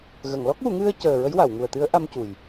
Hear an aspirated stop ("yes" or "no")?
no